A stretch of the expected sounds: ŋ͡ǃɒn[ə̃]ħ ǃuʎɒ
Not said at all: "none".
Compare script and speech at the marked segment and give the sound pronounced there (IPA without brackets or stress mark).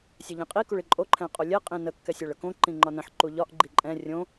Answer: ə̃